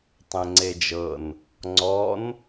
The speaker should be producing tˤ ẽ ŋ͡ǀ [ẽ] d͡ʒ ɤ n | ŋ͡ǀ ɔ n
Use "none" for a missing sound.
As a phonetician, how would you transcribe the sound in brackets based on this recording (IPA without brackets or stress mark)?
e